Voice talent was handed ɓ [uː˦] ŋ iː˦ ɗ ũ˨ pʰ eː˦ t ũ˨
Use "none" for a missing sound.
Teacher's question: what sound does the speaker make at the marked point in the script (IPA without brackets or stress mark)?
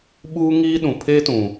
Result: uː˦